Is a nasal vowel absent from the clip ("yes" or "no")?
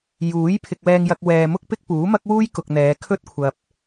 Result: yes